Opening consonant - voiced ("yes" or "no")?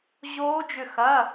yes